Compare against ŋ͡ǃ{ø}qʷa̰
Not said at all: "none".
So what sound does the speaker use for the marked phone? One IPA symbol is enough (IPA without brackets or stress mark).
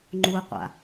u